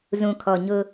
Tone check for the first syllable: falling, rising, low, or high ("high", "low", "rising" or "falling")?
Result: low